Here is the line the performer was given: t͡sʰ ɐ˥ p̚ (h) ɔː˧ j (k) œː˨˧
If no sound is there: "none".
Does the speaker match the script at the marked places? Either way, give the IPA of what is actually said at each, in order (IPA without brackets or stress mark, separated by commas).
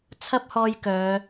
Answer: h, k